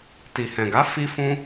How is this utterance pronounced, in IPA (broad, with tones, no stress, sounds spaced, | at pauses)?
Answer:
t i˨ h ɛ̃˨ ɡ a˨˦ f i˦ f ũ˦